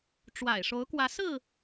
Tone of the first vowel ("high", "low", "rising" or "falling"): low